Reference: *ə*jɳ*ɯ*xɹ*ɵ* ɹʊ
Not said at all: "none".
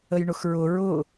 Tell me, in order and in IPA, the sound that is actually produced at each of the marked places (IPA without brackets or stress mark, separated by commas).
ə, ʊ, ʊ